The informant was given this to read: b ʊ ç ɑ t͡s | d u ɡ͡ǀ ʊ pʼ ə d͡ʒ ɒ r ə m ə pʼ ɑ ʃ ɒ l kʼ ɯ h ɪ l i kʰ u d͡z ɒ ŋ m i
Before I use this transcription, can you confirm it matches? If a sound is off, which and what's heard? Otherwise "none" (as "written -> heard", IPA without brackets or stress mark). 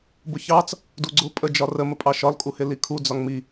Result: ɯ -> u